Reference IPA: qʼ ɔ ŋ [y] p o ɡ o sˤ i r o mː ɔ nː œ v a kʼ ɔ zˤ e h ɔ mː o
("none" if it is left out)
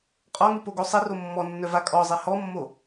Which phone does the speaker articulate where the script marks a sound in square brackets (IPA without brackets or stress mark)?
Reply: y